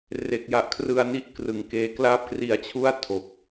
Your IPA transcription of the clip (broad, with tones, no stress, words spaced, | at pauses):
re˨˩k̚ja˨˩ʔkʰrɯ˧a̯ni˥˩ʔ krɯ˨˩ŋkeː˧ klaː˥˩p̚kri˧a̯t͡ɕʰu˥˩a̯ tʰo˨˩k̚